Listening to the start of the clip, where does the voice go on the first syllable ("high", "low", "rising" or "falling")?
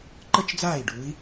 falling